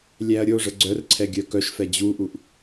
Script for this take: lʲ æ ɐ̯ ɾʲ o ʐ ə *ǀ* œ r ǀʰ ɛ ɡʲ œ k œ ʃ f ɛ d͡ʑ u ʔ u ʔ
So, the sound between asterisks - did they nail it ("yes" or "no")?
no